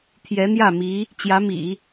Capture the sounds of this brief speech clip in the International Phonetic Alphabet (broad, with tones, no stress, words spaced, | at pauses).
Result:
t̪ʰjɛ˧˥n̪jä˥˩mi˧˥ | t͡ɕjä˧˥mḭ˨˩˦